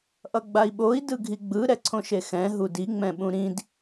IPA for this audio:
ʔ ʌ ɡ͡b a i̯ ɓ o i̯ d ɯ ɡʱ i ɡ͡b ɯ ɾ ɛ ǀʰ õ ʃ e x ɛ̃ ɦ u d i ŋ͡m ɛ̃ ɓ ũ ɾ ĩ d

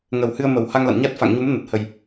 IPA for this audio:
ŋ ə˨˩ w h ɨ˧ ə̯ m ə˨˩ w h a˧ ŋ l a̰˧˨ n ɲ a˦˥ t̚ f a̰˧˨ ŋ ɲ u˨˦ m n ə˨˩ t̚ h ə˨˩ j

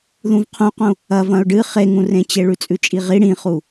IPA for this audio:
ð ũ v qʰ ũ q ũ | ɐ v ɐ̃ ʊ̯ ɖ ɨ χ e ŋ ũ r ẽ t͡ɕ e ɭ ʉ t͡sʼ ʉ t͡ʃʼ i ʁ i ɽ ĩ χ u

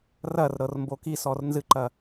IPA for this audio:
r ɐ r ɾ ɤ r m b o k i s ɔ r n z ɨ ǃ ɐ

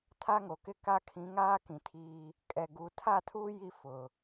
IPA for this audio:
tʰ a˦ ŋ o˨ k ɪ˦ k a˦ kʰ ĩ˨˦ ŋ aː˦ k ĩ˨ tʰ iː˦ | kʼ ɛ˨ ɡ u˨˦ tʰ a˦˨ tʰ uː˦ j i˦ f ʊ˨

